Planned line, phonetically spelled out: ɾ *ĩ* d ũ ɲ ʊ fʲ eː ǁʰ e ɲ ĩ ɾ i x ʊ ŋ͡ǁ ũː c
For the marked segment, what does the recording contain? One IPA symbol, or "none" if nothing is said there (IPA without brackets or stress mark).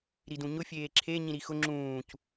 i